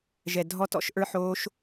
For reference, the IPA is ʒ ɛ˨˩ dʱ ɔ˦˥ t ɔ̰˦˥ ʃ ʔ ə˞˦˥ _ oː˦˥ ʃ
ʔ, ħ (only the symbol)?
ħ